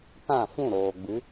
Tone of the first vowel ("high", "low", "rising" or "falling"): falling